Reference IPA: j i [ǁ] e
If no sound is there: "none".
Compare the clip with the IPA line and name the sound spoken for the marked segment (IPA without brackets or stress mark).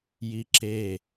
ǁ